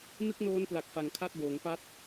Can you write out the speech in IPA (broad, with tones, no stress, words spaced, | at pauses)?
nɯ˥˩k̚noː˦˥n pla˨˩k̚fa˩˦ŋkʰa˥˩t̚boː˩˦ŋ pa˦˥t̚